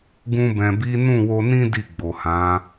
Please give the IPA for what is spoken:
ɡ ũ˧ b ɛ̃˨ b i˨˦ n ũ˦˨ w o˧ n ĩ˦ d i˦˨ ɡ͡b o˨ h ã˨˦

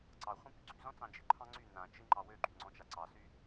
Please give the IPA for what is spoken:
ǀ ɑ χʷ ĩ p y ɡ͡ǀ y z ɔ̃ t͡s ɑ̃ d͡ʒ ɪ ǃʰ ɑ̃ ŋ͡ǀ y n ã t͡ʃ ɪ ŋ͡ǃ ɑ w ø ɡ͡ǃ y ŋ͡ǀ ɔ̃ t͡ʃ a ǀ ɑ s y

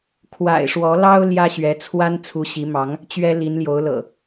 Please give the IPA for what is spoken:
kʰ w a̰˨˩ ɪ̯ ʂ w ɔ˨˦ l ɑ˦ ʊ̯ l j ä˦ ɕ ɥ ɛ˨˦ t͡sʰ w a˦ n t͡sʰ u˨˦ ɕ i˨˦ m ɑ˨˦ ŋ | t͡ɕ ɥ ɛ˦ l i˨˦ n l j o˨˦ ʊ̯ l ɤ̰˨˩

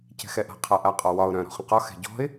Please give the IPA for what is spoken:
c ɛ̤ x ɛ ʔ a̤ qʰ a ʔ a qʼ ɒ w ɒ ʊ̯ ɾ œ̃ ɾ ɔ̤ χ ə̃ q ɒ x ɛ̤ ɟ ɔ̤ ɪ̯

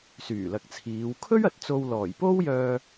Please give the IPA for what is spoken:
s yː˨˩ l ɐ˨ k̚ t͡sʰ iː˨˧ w kʰ ɵ˥ ɥ ɐ˨ t̚ t͡s o˧ w l ɔː˨˩ j p o˥ w j œː˧

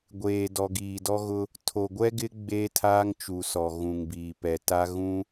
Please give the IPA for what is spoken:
ɡʷ eː˨ d ɔ˨ ɡ iː˨ d ɔ˦ ɣ ʊ˦ | tʰ o˨ ɡʷ ɛ˦ ɡ ɪ˦ ɡ͡b eː˦ tʰ aː˦ ŋ t͡ʃ u˨ s ɔ˨ ɣ ũ˨ ŋ b iː˨ p ɛ˨ t a˦ ɣ ũ˦

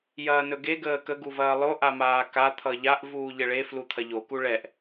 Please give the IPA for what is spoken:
j ɐː n ɵ ɡ e ɡ əː k ə ɡ u v ɐː lˠ o ʔ a m aː k a t̪ʰ ʌ ʎ a ʔ v uː ʎ ɘ ɭ e f l u t̪ʰ ɐ ʎ o k u ɭ ɛ ʔ

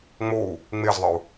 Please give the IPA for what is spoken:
ŋ͡m o u̯ | ŋ͡m e z ðˤ ə u̯

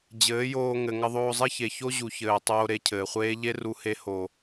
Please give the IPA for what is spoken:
d͡ʑ ɘː˨˦ j oː˧ ŋ ɘ˨ ŋ ɐ˧ ðˤ oː˧ zˤ e˦ ç e˨ ç o˦ ʑ u˨ ç ɘː˨ tˤ oː˧ ɾ e˧ cʰ ɘː˨ χʷ eː˦ ʎ e˦ r u˧ h e˧ h o˨

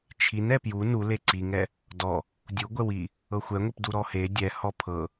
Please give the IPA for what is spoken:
t͡ʃʰ i n ɛ p j u n u l e ǀ i ŋ ɛ | d ɔ | dʲ u ɡʷ ɛ w i | ɤ xʷ ɛ ŋʷ i p d u ɾ ɔ h e dʲ ɛ h ɔ pʰ ɤ

